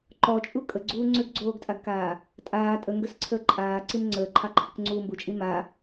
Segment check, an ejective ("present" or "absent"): present